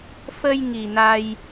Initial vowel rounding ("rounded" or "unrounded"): unrounded